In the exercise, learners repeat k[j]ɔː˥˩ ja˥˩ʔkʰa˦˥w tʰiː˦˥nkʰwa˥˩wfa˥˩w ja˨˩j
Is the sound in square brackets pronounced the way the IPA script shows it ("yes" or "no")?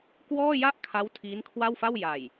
no